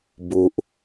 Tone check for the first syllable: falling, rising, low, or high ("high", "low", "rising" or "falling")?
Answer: low